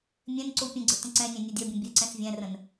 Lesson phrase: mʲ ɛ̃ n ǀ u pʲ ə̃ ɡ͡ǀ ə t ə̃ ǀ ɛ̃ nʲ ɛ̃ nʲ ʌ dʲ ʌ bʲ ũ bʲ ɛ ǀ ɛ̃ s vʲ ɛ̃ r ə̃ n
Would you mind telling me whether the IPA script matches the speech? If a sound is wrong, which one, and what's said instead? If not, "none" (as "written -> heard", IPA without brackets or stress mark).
none